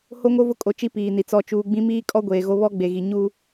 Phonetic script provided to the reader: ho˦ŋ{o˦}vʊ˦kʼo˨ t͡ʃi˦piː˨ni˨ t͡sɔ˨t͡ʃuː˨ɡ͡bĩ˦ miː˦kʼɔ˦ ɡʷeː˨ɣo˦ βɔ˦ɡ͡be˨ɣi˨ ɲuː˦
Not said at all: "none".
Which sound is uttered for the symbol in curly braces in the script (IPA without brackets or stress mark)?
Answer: o˦